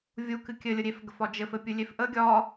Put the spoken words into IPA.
vʲ u k ɨ kʲ ɘ lʲ ə ɾʲ e f ɡ ə f ɒ d͡ʒ ɘ f ɘ pʲ ɨ lʲ e f ʔ ə ɡʲ ɒ

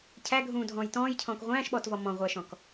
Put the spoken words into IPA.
cʰ æ ɡʱ ũː dʱ ɔ̃ː j t ɔ̃ː j cʰ ɔ̃ː k ʁʷ æ̃ː ʃ ɓ ɔː t v ɔ m ɔ̃ ʁʷ æ ʃ ɔ̃ k

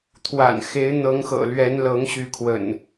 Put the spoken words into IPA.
t̪ʰ w a̰˨˩ n x e˨˦ ɪ̯ n̪ ɤ˨˦ ŋ x ɤ̰˨˩ l ɥ ɛ˨˦ n l ɤ˨˦ ŋ ɕ y˨˦ kʰ w ə̰˨˩ n

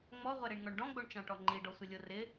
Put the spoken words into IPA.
ŋ͡m ɔ ʁʷ ɛ ɾ i ɳ ŋ ɔ ɳ ɖ ɔ̃ ɡ͡b o ɳ t͡ʃ ɑ̃ ʈ ɔ ŋ͡ǃ i ɖ ɔ sʷ ɪ lʲ o r ɪ

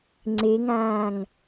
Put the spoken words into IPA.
ŋ͡ǀ e ŋ ãː ŋ

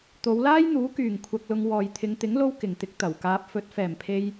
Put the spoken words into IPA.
t̪ o˨˧ w l aː˥ j n̪ uː˨˥ k yː˨ ŋ kʷʰ ɐ˧ k̚ l ʊ˧ ŋ w ɔː˨ j t̪ʰ ɪ˨˧ ŋ t̪ ɪ˨˥ ŋ l o˧ w k ɪ˨˩ ŋ t̪ ɪ˧ k̚ t̪ ɐ˨˩ w k aː˧ p̚ f ɵ˨˥ t̚ f ɛː˨˩ m pʰ e˧ j

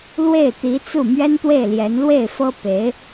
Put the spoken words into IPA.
l w e˥˩ ɪ̯ t̪ i˧˥ t͡s u˥˩ m ɥ ɛ˥ n t̪ w e˥˩ ɪ̯ l j ɛ˧˥ n l w e˥˩ ɪ̯ f ɤ˥ p e˧˥ ɪ̯

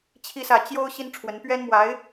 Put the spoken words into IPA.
t͡ɕʰ i˥ s ä˥˩ t͡ɕ j o˥ ʊ̯ ɕ i˥ n ʈ͡ʂʰ w ə˧˥ n p ɥ ɛ˥ n m w a˧˥ ɪ̯

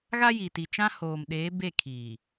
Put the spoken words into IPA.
ɣ a˦ j i˨ t i˨ t͡ʃ ã˦ h oː˨ m ɗ eː˨˦ b e˦˨ kʰ iː˨

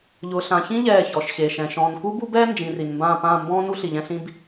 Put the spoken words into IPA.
ʎ ʊː˨ ɬ ã˨ ç ĩ˦ ʎ ɛː˦˨ ç ɔ˨ ʃ ɕ e˨ ʃ ɛ̃˨ ʃ ɔ̃ː˨ n k u˦ b u˦ b ɛː˦ n d͡ʒ ĩ˨ r i˨ n m b ãː˦˨ p ãː˦˨ m b ɔ̃ː˦ n u˦ ɬ i˨ ʎ ɛ̃˦ ɬ ĩ˦ b

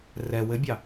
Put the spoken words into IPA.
r ɛ w ɘ bʲ ɑ

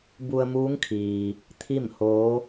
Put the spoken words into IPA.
b u˧ ə̯ m uː˧˥ ŋ kʰ iː˩ | t̪ʰ i˥˨ m h oː˧˥

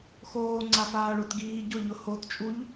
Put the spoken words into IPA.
x oː ŋ͡ǀ a f aː ɭ o t ɡ iː ɟ ʊ ʎ ʊ h o t t͡ʃʼ u ʎ

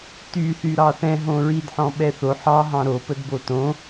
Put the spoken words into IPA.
t y θ y ɾ ɑ θ ɛ̃ ɦ õ ɹ i d ħ ɔ̃ ɓ ɛ θ o ħ ɑ ɦ ɑ̃ ɾ o p ə d b o t õ

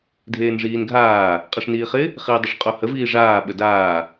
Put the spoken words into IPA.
dʱ eː n ʐ iː n ɡʱ aː | qʼ e ʂ n iː χ ɪ | χ iː dˤ ɪ ʂ qʼ o h ə v iː ʐ aː ɓ ə d aː

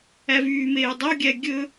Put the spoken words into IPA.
æ v yː m eː dˤ o ɡʲ æ ɡʲ ɵ

